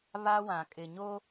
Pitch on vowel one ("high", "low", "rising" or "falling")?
high